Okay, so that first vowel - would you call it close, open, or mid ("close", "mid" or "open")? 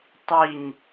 close